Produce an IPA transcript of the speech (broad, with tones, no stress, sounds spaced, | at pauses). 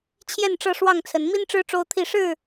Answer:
t͡ɕʰ j ɛ˥˨ n ʈ͡ʂ ɤ˥˨ ʂ w ɑ˥˨ ŋ t͡sʰ ə˨˦ n m i˦ n ʈ͡ʂ ɻ̩˦ ʈ͡ʂ o˦ ʊ̯ t̪ʰ i˥˨ ʂ ɻ̩˥˨